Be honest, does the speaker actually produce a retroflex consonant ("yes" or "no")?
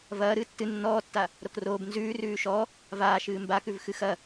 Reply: no